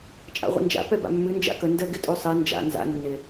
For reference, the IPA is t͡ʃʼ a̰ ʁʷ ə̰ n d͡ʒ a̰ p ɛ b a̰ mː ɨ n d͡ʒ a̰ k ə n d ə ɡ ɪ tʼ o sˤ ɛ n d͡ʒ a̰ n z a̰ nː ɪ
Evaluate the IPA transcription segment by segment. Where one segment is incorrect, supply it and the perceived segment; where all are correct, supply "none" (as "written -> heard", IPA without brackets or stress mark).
none